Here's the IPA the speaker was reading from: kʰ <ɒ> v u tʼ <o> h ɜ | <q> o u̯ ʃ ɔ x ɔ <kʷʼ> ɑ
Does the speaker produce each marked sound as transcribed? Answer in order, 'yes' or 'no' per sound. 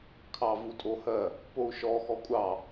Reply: no, yes, no, yes

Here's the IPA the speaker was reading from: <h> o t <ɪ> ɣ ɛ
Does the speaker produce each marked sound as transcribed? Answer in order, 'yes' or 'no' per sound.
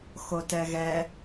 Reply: no, no

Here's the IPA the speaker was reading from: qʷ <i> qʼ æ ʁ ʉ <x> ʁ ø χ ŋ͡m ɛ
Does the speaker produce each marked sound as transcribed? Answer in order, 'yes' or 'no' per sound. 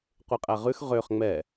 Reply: yes, yes

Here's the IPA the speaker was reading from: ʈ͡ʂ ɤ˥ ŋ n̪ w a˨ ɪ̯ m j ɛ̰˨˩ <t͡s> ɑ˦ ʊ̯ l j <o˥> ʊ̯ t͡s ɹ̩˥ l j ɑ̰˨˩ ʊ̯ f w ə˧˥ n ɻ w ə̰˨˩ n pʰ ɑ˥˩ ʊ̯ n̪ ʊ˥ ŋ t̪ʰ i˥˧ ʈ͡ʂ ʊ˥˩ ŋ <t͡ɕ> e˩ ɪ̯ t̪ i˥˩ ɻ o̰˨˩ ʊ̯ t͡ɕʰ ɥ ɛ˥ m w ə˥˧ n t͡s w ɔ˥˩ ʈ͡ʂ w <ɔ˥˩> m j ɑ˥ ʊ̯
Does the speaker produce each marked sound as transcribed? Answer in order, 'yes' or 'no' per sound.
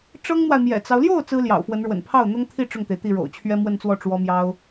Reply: yes, no, no, no

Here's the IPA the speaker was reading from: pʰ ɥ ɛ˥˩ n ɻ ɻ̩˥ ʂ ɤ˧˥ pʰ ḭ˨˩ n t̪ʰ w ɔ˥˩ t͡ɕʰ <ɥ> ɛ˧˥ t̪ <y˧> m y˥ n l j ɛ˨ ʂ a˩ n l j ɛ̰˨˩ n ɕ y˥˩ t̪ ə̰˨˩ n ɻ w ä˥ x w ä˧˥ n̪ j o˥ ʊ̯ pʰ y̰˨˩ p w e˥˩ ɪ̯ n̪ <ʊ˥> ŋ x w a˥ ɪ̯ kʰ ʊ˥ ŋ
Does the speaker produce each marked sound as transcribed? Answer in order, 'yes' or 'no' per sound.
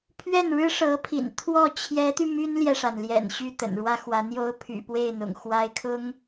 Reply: no, yes, no

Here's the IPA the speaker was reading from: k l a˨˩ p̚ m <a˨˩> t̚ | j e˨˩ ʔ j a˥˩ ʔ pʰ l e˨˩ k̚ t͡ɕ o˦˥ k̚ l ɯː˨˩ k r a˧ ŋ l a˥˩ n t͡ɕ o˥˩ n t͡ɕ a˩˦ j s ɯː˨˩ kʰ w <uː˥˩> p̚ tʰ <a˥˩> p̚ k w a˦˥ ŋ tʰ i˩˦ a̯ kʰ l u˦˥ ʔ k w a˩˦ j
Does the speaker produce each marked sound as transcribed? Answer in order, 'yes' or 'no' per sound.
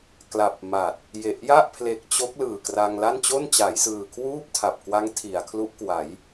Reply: yes, yes, no

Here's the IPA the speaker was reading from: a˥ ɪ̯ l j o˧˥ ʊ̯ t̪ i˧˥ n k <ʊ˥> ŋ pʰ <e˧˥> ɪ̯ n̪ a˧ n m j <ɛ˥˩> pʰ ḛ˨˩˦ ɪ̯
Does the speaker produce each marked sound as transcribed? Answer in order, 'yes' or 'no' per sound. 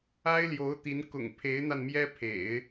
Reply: no, yes, no

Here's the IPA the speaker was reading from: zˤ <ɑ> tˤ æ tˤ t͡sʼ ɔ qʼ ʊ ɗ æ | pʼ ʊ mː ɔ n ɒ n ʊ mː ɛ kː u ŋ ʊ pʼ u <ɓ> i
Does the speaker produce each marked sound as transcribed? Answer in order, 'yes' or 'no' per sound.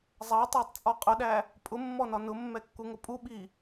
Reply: yes, yes

